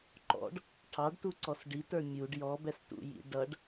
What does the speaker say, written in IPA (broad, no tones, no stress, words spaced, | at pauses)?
ǃɔ̰ɖ | ʈʰɑɖtuǀɔs ɖitə˞ mʲuɖ jɔbɛstṵjḭ ɖʌɖ